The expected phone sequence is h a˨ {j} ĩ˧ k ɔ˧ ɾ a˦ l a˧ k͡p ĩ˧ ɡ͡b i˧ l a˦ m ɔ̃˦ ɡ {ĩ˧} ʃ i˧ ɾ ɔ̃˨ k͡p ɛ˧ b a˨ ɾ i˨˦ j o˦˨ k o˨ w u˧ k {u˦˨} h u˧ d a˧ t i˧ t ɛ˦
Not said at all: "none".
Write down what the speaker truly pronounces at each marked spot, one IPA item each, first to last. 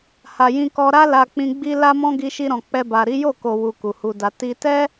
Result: j, i˧, u˨

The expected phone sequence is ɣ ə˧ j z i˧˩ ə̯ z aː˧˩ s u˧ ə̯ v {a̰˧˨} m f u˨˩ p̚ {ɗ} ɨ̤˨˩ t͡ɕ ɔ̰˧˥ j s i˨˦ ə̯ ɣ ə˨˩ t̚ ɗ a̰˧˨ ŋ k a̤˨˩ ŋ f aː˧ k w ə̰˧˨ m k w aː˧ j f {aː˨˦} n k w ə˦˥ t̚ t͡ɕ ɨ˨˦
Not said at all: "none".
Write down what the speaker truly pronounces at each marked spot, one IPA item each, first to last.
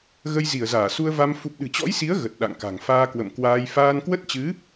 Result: a˧, ɗ, aː˧

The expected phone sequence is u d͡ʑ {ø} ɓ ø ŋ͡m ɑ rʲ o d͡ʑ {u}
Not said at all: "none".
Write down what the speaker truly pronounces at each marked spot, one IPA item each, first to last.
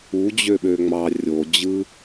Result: ø, ɯ

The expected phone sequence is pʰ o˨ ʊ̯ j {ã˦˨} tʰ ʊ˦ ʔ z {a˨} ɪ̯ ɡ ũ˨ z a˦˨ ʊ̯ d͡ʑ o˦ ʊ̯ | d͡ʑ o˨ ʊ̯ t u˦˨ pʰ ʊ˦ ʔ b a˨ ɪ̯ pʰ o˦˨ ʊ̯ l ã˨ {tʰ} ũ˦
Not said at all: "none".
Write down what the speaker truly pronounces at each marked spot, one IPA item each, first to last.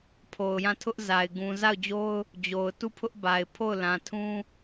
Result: ã˦˨, a˨, tʰ

